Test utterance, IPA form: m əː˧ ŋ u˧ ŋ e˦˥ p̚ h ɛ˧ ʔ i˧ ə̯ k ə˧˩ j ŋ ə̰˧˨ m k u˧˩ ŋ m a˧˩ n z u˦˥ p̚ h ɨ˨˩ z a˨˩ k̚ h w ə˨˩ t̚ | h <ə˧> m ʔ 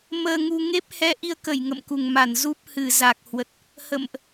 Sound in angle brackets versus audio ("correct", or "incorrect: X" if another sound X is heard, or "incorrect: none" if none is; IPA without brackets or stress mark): incorrect: ə̰˧˨